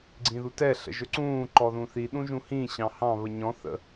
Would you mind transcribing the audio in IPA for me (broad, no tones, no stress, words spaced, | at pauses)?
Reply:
ɡ͡ǀĩðutɛ ɬə̰ʒɵǀũː ǃɔðũθi ɗũʒũhĩ ɕɑ̃hɑ̃ βəɲɔ̃ θə̰